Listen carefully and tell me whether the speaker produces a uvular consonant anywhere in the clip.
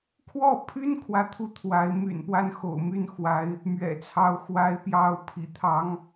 no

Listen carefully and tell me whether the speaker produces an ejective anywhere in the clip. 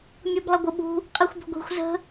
yes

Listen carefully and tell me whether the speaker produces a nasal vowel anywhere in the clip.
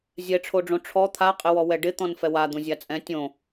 yes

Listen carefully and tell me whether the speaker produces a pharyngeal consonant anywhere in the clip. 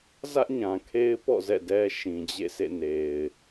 no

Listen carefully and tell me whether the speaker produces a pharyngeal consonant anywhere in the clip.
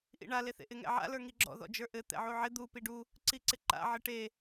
yes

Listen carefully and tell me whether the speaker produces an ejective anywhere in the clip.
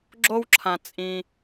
yes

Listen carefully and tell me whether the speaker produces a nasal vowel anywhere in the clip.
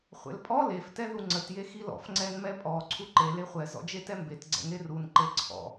no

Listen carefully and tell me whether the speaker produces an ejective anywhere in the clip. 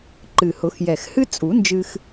yes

